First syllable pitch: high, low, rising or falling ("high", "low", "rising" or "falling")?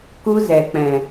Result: high